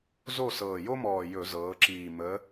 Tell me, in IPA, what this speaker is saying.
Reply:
z o˥˨ s ɤː˨˩ j o˦ m ɔː˨˩ j ɵ˧˩˧ z ɤː˩˧ ǁ iː˨˩ m ə˩˧

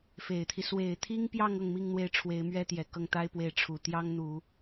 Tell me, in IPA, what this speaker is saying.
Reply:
f e˨˩ ɪ̯ t̪ʰ i˦ s w e˨˩ ɪ̯ t̪ʰ i˥ ŋ p j ɑ˥˧ ŋ ɤ˥˧ ŋ m i˥˧ ŋ n̪ w e˥˩ ɪ̯ ʈ͡ʂʰ w e˧˥ ɪ̯ m ɥ ɛ˥ t̪ j ɛ˨˩ k ɤ˥˩ ŋ t̪ a˥ ɪ̯ p w e˧˥ ɪ̯ ʈ͡ʂʰ u˨˩ t̪ j ɑ˥ ŋ n̪ u˨˩˦

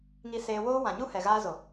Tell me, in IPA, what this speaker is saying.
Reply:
ŋ i˧ s eː˧ w oː˦ w ã˨ ɲ u˦ h ɛ˨ ɣ aː˧ z o˨

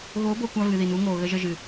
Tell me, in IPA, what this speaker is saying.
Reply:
ɣ o˨˦ b o˨ kʷ a˦ v ɨ˨ ð i˨ n u˨˦ ŋ oː˨ ɣ ə˦ ʒ ə˦ ʒ ɨ˨

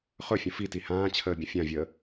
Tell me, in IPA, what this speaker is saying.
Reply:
χ ɵ fʲ ə̃ f i t i h ãː t͡ɕʰ əː bʲ ə̃ fʲ ã vʲ əː

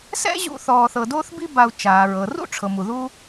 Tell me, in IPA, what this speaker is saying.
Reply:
s ɛ̰˥ ʑ ṵ˦ θ ɔː˨ θ ɤ˨ d oː˦ θ b i˦ b a˨ u̯ t͡ʃ aː˩ ɹ ɤ˩ r ṵ˥ ʈ͡ʂʰ ɤ˩ m u˩ ð u˦

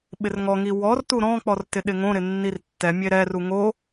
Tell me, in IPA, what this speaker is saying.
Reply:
ɓ ɪ r ŋ ɔ ŋ i w ɔ r t u ɾ ɔ̃ k͡p ɔ r t ɪ ɗ ɪ ŋ õ ɾ ɪ nː i r tː ɛ mʲ e ɾ ɛ r u ŋ o

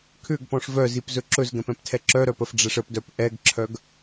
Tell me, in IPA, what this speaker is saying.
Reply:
kʰ ʏ ɡ p ɔ̃ ʂ v œ z i p z ɵ ǁ ɵ z ɡ ɛ̃ p ɛ̃ p tʰ ɛ ǁ œ ɾ œ p ə f ɖ͡ʐ ɛ ʂ ə p d œ p ʔ ɛ ɡ ǁʰ œ ɡ

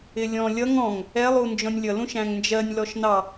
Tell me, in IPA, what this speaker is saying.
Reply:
ɪ lʲ ɔ̃ lʲ ʌ ŋ ɔ̃ ŋ | ɛ lˠ u n d͡ʒ ɔ̃ nʲ lʲ ʌ l ũ ʃ æ̃ ŋ n d͡ʒ ɜ nʲ l ɔ ʃ n ɑ

